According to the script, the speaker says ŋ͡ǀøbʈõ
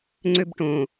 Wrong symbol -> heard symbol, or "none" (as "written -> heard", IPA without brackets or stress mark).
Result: none